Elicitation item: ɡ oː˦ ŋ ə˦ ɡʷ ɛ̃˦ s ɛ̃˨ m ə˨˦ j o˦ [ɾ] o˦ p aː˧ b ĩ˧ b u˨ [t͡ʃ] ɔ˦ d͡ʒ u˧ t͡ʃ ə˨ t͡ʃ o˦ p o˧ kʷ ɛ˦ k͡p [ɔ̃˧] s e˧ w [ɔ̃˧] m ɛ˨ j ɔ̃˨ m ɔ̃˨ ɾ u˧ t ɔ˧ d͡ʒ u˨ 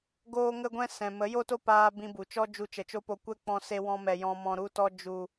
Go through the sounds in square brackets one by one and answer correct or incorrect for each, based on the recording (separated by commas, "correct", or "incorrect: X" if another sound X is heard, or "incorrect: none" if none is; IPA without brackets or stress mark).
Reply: incorrect: t, correct, correct, correct